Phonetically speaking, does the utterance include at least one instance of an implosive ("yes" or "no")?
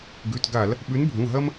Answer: yes